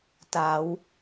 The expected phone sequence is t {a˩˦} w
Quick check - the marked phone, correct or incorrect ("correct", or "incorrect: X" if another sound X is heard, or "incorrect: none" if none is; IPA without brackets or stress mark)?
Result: correct